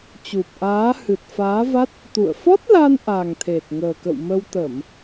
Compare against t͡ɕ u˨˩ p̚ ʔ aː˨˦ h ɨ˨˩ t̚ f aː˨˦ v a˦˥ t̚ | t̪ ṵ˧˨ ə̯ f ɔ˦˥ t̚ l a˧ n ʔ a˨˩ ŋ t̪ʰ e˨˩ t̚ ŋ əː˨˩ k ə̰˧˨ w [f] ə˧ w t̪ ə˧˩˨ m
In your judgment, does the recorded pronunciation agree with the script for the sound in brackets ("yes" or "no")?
no